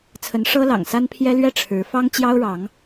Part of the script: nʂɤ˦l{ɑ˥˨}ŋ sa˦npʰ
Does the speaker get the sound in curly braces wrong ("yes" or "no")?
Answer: yes